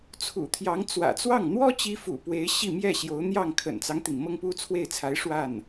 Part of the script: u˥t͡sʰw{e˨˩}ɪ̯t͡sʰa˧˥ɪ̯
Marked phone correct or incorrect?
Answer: incorrect